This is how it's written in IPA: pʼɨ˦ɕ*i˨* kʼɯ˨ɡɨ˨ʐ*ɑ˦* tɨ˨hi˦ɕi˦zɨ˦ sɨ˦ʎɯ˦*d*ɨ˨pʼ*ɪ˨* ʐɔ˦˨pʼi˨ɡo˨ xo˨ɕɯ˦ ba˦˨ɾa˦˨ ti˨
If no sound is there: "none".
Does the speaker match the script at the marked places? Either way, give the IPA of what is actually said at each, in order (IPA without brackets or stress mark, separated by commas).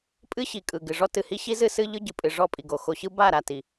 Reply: i˨, ɔ˦, ɟ, ɨ˨